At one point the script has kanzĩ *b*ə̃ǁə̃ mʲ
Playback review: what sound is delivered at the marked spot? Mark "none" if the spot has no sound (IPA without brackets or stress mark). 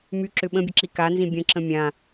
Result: bʲ